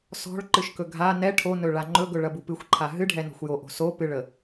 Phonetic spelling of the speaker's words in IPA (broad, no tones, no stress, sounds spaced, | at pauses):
s ɔ̤ ɭ ǃ ɨ ʃ k ɵ ɡʱ a n ɛ ʈʰ o n ɵ ɭ a ŋ͡ǃ ɵ ɡ ɵ ɭ ɐ b u p ɨ xʷ ǃʰ a ɦ ɨ ɖʱ ɛ n ɔ̤ xʷ j o ʔ o̤ s o p ɨ ɭ ə